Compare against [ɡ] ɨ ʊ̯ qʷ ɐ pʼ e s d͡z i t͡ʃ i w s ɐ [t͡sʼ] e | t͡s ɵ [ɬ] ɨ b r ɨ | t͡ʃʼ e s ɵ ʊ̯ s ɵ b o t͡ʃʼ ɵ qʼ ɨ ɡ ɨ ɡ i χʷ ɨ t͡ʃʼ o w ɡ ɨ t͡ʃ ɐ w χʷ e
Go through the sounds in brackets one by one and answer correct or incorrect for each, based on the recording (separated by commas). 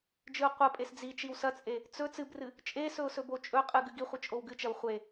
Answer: incorrect, correct, incorrect